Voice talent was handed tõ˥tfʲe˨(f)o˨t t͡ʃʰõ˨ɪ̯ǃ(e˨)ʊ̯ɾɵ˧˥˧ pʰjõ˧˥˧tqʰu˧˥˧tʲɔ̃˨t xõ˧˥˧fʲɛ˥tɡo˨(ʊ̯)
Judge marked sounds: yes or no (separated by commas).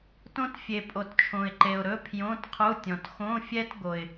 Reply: no, yes, no